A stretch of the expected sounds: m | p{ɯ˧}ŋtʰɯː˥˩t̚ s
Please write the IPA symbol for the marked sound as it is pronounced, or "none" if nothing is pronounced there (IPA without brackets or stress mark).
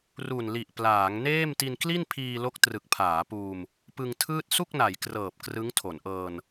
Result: ɯ˧